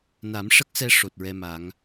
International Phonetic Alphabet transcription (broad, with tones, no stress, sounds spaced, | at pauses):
n a˨˩˦ m ʂ ə˦˥ k̚ s ɛ˧ ʂ o˨˩ t̚ ɹ ɛ˧ m a˨˩˦ ŋ